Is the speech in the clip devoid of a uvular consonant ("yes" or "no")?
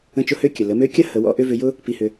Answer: yes